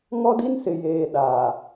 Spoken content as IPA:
ŋ ɔ˦ d i˦ n s ɪ˨ j eː˨ ɗ aː˨

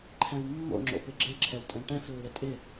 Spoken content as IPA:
ǃʰ ɛ̃ w mː o̰ ŋ͡ǁ o̰ p ɪ ɡ͡ǁ ɪ ǁʰ ɛ w tʼ ɛ̃ ʈ ɛ̃ f lː ɪ tʼ ɪ

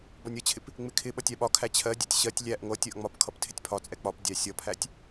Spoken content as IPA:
b ɒ nʲ ʌ t͡ɕʰ ɪ p | ŋ͡m ɪ kʰ ɪ ɓ ʌ tʲ æ ɓ ɒ kʰ æ t͡ɕʰ ɜ dʲ ɛ tʲ ɕ ɜ tʲ lʲ æ ʔ ŋʷ ʌ tʲ ɜ ʔ ŋ͡m ɒ p kʰ ʌ p tʰ ɪ tʲ pʰ ɒ t͡sʼ ɛ k͡p ɒ p dʲ æ sʲ ʌ pʰ æ tʲ

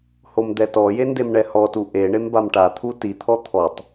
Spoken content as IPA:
h o m d̪ ɛ t ɔ j e n d e m ɳ ɛ h ɔ t u ʔ e ɳ e m b a m ʈ a t̪ʰ u t i t̪ʰ ɔ t̪ʰ ɔ tˤ

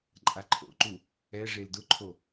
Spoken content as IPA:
ǃʼ a ǃʰ o̰ ǃ u | ɛ ʐ e l d ʊ ǃʰ o

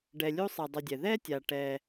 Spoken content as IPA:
ɖ ɛ˨ lʲ u˥ sˤ ɛ˨ dˤ ɵ˨ dʲ ɛ˩ ð ɛ˥ tʲ a˩ ʈ ɛ˨

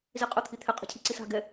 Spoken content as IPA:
z i qʼ ʊ t̪ʰ i t̪ʰ ɪ qʼ ɛ̤ cʰ i ǀ i s a̤ ɡ ɛ

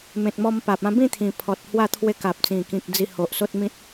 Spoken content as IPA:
m ẽ˨ t̚ m ɔ˧ m p a˨ p̚ ã˧ b ĩ˥˧ t̪ʰ ĩ˨˩ pʰ ɔ˨ t̚ h w a˥˧ t̪ʰ w e˧ k a˨ p̚ t͡s ĩ˨˩ k ĩ˨ k̚ d͡z i˧ h o˨ ʔ s o˦ t̚ m ĩ˦ t̚

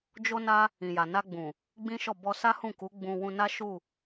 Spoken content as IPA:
d͡ʒ o˦ n a˦ | ĩ˨ j a˨ n a˧ ɡ͡b ũ˨ | ɡ͡b ĩ˦ ʃ ɔ˦˨ b ɔ˧ s a˦ h ũ˦˨ k u˨˦ ɡ͡b ũ˧ w ũ˧ n a˦ ʃ u˦˨

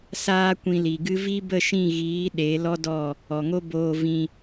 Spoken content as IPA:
s aː˦ kʷ ĩ˧ l i˨ ɡ ɨ˦ v i˦ b ə˦˨ ʃ ĩ˦˨ ɣ iː˨˦ ɗ e˨˦ l ɔ˦ d ɔ˦˨ | ɔ˨ ŋ o˦ b oː˧ v ĩ˧

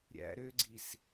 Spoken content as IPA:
ɾʲ æ̰ ɾ ø ɡ͡ǀ i s

